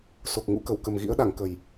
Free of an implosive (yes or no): no